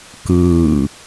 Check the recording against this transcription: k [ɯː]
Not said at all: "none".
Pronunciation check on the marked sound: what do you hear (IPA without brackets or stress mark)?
ɯː